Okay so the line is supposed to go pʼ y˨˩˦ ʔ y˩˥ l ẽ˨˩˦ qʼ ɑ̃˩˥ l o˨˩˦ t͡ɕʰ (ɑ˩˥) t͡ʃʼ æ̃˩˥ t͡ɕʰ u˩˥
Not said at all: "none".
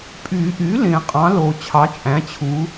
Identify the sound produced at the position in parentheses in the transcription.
ɑ˩˥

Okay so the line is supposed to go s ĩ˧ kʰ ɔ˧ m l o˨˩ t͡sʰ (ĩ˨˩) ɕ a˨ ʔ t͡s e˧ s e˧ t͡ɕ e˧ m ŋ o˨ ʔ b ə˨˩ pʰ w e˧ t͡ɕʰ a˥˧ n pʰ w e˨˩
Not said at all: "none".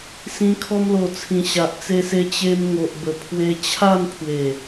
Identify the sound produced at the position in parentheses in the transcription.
ĩ˨˩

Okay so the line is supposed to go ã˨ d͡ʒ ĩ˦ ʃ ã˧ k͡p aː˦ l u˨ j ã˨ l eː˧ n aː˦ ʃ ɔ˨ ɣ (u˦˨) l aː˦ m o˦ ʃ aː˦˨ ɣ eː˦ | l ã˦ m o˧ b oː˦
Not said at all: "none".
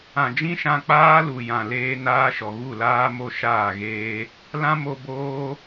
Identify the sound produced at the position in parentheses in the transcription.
u˦˨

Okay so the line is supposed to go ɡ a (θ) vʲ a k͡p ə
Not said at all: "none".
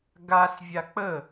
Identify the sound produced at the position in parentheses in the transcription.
s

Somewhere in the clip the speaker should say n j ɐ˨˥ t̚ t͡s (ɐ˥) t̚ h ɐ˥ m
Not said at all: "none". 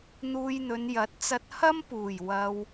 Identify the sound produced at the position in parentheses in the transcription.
ɐ˧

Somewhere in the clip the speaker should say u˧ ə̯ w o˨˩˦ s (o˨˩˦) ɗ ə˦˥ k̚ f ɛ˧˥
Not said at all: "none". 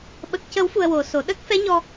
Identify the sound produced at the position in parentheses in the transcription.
o˨˩˦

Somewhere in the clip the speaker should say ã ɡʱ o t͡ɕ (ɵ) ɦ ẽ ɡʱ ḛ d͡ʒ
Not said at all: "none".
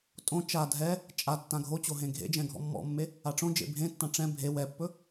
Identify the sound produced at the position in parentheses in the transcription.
o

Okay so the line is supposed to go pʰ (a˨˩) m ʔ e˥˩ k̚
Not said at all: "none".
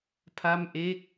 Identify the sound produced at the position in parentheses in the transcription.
a˥˩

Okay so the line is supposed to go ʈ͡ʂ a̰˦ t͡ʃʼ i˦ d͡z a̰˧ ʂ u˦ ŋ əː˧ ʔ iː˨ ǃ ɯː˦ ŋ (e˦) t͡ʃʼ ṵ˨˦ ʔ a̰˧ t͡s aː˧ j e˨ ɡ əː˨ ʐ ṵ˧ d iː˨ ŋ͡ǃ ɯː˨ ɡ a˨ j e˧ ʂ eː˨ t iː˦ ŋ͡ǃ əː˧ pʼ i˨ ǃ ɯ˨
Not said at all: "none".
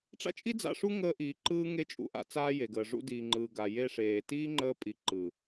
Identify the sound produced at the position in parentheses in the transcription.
e˦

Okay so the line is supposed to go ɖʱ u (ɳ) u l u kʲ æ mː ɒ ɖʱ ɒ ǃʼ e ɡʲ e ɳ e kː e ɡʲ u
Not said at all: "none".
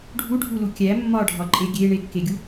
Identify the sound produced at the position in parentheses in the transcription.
ɖʱ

